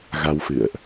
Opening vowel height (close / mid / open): open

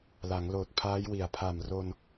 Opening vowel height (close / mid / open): open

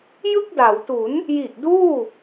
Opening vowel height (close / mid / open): close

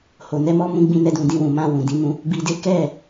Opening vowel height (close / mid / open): mid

